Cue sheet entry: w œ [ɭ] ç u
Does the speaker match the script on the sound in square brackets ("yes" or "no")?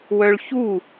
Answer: yes